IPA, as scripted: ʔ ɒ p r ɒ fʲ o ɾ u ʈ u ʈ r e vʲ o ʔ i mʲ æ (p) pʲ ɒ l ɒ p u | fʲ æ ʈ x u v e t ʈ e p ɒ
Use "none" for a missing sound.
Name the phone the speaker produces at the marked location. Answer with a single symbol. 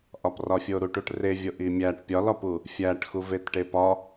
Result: ʈ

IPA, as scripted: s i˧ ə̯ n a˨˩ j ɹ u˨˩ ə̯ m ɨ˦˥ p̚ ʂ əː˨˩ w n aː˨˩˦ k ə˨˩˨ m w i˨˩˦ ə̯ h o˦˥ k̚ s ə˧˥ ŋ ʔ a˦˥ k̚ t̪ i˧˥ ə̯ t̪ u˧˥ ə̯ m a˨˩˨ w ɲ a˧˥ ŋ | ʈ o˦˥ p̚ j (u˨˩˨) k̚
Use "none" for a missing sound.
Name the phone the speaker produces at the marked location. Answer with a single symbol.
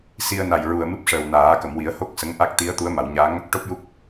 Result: u˦˥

